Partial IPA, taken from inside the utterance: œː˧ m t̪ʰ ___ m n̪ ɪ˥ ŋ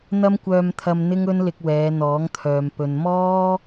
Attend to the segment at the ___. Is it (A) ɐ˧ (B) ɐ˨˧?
A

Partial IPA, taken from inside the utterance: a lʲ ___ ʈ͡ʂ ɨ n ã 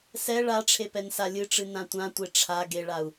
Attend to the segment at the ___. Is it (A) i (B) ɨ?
B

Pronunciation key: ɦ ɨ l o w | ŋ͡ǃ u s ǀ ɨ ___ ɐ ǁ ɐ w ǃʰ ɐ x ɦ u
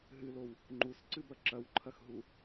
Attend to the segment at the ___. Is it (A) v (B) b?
B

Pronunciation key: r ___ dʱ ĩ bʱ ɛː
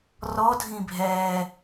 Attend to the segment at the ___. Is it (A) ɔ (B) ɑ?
A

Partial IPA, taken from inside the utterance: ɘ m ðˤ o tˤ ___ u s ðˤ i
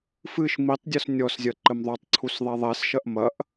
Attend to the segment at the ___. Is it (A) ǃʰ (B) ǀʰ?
B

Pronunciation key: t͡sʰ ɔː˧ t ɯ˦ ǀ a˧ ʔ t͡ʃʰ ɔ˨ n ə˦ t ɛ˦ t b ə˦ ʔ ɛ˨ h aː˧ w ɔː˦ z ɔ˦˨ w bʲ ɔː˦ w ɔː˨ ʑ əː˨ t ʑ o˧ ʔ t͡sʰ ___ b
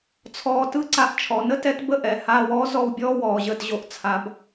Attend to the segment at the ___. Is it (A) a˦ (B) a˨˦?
B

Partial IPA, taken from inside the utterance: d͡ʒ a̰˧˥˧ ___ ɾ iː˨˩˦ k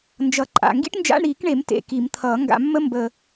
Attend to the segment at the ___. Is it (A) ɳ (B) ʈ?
A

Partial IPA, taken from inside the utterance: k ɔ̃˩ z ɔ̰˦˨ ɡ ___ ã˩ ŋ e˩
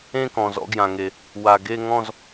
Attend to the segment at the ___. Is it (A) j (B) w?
A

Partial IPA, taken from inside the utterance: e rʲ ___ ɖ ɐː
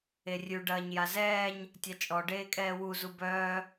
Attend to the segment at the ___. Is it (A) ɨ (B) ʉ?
B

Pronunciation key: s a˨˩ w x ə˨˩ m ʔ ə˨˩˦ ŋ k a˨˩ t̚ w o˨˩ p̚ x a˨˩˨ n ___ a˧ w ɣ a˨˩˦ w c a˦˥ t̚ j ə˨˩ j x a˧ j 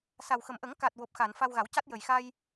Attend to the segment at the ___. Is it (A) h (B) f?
B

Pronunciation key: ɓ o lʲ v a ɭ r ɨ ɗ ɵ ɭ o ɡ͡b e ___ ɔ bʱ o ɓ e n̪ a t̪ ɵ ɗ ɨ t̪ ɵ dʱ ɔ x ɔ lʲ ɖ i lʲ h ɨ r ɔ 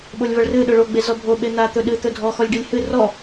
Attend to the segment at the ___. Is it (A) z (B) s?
A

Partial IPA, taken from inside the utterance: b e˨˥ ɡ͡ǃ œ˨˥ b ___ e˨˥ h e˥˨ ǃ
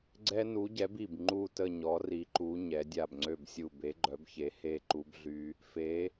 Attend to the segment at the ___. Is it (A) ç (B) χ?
A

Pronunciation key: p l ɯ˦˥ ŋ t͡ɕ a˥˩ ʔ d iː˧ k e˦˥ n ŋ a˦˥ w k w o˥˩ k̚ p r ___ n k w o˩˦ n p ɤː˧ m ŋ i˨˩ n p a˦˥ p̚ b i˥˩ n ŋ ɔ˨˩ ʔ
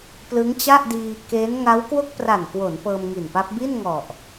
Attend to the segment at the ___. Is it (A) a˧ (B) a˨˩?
B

